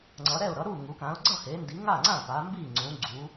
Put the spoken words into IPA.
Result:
ŋ͡ǀʌ˩˧ɾɛ˥˩ʊ̯ ɾʌ˩˧ɾu˥˩ŋu˩˧ kã˩˧ʊ̯ɡ͡ǀʌ˥˩he˩˧ndi˩˧ ŋa˥˩ŋ͡ǀã˥˩pa˩˧ mbi˥˩ŋ͡ǀũ˩˧ɡ͡ǀu˩˧

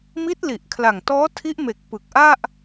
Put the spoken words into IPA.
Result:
mi˦˥t̚li˨˩ʔkʰla˨˩ŋtɔː˦˥ tʰi˦˥ʔme˨˩k̚ pɯ˨˩k̚ ʔa˥˩ʔ

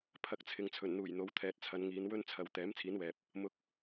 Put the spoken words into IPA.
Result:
pʰɐ˧k̚t͡sʰɪ˨ŋ t͡sʰɵ˨˩nn̪uː˨˩j n̪o˨˧wt̪ʰɛː˨t̚t͡sʰɐ˨˧nŋiː˨˧n wɵ˥n t͡sʰɐ˧w t̪ɛː˨˥m t͡sʰiː˨˥nwɛː˨p̚ | mʊ˨˥k̚

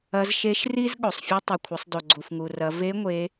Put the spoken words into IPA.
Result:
ɐ˧˥z ʃe˧˥ʃri˥z ɠo˩sˤfʲɨ˥ tˤi˩kʷʰɐ˩˧sˤdo˩ ɡ͡ǀu˩fŋu˩rɐ˩˧ ve˧˥ŋʷe˩˧

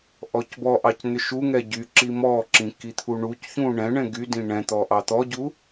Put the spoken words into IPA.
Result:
ʔɔcbɔʔɑc n̪ʏʃuŋɛ ɟy ǁimɔǁĩ kit̪ʰuɳucçũ ɳɛ̃ɳɛ̃ ɡydĩ ɳɛ̃t̪ɔ ʔɑt̪ɔɟu

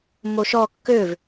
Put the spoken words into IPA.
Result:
moʃɔ kːøv

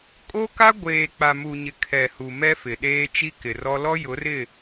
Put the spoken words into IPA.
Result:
kʼo˦ka˦ ɡʷeː˨k͡pa˨ mu˨ɲɪ˨ kʰɛ˨hu˨ mɛ˦fɪ˨ɗeː˦ t͡ʃi˦kɪ˨rɔ˦ lɔ˦jʊ˨˦rɪ˦˨

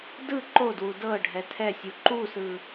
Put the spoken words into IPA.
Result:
dɯ ǃodwu dɤ ɖʱɛtʰɛsʲu ǃusɯ

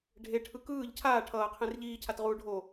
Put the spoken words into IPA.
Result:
ɖʱeʈʰɯ kɯːʎ cʰaː ʈʰʌːqʰẽr ʎiːcʰatʁuː ɖʱo

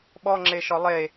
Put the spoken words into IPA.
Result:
ɓɔŋ͡ǁeʃɔ lˠe

